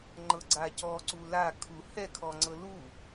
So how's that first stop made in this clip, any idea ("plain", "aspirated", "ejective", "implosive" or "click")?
click